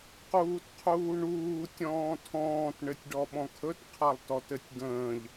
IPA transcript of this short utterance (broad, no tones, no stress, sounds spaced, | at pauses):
q uː t qʰ uː ɳ uː tʲ ɔ̃ː tʰ ɔ̃ː t ɳ ɘ tʲ ɖ ɔ ɓ ɔ̃ kʰ ɵ t qʰ a lˠ t ɔ t ɘ tʲ ɡ ə̃ː ʎ